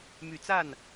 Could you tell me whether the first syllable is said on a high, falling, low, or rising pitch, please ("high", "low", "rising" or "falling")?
low